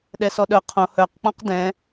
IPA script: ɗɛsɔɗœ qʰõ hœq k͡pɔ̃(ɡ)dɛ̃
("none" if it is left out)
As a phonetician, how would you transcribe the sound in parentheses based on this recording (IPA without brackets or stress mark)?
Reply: q